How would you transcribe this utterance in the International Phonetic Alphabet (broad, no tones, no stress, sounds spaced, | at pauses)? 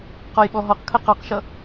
q ɔ j ɓ ɔ ɦ ɔ q kʰ ɐ q ɔ q ʃ ʌ